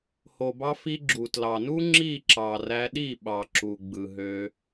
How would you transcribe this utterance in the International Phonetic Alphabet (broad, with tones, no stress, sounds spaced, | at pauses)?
h o˨ b ɑ˧ f i˧ ɡ͡ǁ u˨ t l ɑ˨ n u˦ ŋ͡ǁ i˦˨ ǁ ɑ˨ r æ˧ ɗ i˦˨ ɓ ɑ˨ ǁ u˨ ɡ͡b ɯ˨ ɦ ø˧